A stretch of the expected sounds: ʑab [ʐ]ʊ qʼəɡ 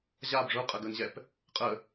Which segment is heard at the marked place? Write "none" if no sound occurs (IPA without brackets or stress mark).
ʐ